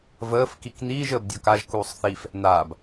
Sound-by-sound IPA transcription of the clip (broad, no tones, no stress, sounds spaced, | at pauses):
v əː f k i k n̪ iː ʒ əː b dʲ ɔ k a ʒ k uː sˤ θ i f | n̪ a b